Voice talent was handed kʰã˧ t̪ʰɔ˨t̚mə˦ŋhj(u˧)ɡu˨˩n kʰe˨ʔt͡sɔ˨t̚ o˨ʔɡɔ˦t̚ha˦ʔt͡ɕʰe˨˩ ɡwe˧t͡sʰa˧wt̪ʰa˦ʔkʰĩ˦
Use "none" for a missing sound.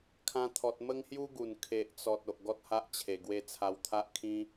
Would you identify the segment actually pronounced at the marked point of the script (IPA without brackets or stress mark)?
u˦